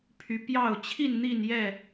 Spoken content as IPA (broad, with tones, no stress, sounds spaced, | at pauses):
pʰ y˨˦ p j ɑ˥˨ ʊ̯ t͡ɕʰ i˥˨ n n̪ i˥˨ n j ɛ˥˨